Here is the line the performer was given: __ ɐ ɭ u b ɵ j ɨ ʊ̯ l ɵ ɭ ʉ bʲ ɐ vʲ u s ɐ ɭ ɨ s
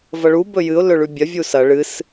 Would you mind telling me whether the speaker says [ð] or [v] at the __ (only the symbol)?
v